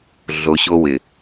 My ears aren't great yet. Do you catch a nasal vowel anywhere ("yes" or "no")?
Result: no